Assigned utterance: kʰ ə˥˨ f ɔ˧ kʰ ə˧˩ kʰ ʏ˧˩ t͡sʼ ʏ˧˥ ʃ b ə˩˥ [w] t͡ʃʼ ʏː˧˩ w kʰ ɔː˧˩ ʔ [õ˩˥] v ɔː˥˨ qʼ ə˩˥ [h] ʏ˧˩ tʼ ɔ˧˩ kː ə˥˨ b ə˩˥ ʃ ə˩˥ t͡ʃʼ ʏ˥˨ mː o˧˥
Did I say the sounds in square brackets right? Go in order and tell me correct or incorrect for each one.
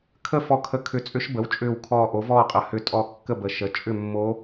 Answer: correct, incorrect, correct

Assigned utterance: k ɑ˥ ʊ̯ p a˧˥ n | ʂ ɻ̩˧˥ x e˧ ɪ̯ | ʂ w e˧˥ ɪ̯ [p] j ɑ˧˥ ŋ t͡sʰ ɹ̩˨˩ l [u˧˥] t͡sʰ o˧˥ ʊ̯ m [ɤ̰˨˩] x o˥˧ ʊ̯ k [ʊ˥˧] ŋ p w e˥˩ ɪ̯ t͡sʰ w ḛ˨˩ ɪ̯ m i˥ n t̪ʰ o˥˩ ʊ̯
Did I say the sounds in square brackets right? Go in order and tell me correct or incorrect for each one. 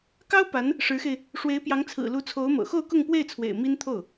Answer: correct, correct, correct, correct

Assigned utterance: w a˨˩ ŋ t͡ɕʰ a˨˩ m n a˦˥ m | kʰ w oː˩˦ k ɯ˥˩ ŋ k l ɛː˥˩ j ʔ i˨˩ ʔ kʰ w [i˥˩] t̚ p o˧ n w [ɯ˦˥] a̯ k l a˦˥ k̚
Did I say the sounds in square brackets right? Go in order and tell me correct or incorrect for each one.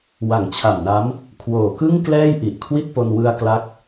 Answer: correct, incorrect

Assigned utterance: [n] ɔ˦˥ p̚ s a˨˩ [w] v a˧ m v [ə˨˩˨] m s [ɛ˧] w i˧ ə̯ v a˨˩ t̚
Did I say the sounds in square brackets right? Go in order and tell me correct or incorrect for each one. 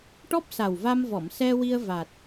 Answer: incorrect, correct, incorrect, correct

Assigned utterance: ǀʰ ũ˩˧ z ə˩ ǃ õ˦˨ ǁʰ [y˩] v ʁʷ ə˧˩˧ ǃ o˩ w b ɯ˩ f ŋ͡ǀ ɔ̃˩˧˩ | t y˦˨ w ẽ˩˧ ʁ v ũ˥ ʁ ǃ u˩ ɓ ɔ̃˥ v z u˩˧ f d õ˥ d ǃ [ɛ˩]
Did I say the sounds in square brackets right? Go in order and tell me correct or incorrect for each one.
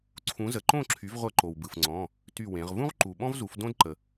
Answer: incorrect, incorrect

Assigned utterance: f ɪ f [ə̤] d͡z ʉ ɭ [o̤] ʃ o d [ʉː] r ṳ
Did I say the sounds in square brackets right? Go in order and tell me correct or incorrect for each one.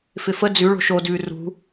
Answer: incorrect, correct, correct

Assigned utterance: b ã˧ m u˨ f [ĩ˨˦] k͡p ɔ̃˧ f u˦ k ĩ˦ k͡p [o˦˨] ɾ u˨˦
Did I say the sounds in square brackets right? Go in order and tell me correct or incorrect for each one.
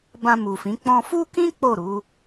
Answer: correct, correct

